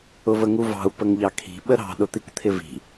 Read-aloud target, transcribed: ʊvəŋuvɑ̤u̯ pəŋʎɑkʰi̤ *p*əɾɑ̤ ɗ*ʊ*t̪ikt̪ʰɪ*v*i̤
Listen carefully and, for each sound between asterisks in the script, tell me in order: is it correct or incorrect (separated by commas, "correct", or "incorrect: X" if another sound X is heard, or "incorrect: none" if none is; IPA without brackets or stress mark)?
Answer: incorrect: ɓ, correct, correct